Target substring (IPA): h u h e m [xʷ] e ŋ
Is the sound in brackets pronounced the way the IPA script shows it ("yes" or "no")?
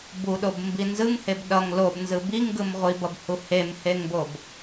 no